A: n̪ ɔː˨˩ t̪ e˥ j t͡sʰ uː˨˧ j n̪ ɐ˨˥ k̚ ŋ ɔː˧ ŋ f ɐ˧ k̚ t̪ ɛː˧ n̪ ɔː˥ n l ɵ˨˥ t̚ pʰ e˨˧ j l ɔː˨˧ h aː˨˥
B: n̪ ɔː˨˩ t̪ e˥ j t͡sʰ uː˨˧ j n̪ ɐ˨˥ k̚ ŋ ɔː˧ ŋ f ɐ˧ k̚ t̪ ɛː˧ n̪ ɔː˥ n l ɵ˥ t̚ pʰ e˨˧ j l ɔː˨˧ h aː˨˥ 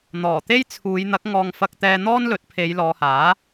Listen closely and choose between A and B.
A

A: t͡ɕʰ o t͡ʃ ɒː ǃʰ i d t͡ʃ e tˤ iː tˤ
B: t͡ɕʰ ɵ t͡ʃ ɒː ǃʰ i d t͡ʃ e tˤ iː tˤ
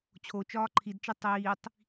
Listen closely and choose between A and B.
A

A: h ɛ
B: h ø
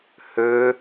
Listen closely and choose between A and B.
B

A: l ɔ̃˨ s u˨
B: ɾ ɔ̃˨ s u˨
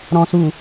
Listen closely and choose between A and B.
B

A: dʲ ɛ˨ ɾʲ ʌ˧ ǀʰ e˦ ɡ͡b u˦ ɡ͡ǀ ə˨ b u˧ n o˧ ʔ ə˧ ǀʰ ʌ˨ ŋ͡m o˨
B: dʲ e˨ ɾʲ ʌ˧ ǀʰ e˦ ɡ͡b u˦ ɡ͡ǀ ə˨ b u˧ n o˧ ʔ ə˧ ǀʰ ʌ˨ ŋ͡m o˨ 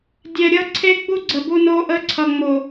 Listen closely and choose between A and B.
A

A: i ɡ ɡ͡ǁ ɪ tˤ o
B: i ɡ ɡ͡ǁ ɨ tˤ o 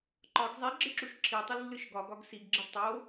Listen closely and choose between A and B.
A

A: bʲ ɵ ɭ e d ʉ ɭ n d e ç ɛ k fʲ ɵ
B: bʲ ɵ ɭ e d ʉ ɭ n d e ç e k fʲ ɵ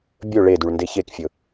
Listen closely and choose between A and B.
B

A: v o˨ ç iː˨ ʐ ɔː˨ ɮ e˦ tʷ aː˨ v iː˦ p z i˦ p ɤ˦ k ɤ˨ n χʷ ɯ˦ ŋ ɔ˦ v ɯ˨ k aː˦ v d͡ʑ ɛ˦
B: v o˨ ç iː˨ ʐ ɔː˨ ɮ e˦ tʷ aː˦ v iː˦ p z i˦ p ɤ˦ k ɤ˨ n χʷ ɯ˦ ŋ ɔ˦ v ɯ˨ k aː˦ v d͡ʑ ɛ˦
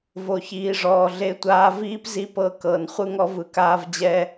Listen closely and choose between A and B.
B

